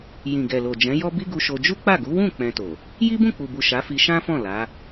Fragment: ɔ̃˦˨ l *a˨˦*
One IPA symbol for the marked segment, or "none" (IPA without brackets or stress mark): a˨˦